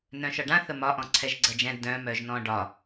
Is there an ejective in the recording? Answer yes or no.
no